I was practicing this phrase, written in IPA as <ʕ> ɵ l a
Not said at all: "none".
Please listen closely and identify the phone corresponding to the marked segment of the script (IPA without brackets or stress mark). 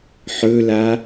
ħ